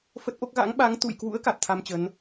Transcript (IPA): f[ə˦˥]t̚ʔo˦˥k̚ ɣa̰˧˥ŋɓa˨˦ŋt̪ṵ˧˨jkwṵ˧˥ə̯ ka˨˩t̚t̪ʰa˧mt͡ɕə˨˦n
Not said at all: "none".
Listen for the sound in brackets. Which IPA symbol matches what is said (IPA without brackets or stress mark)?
ə˦˥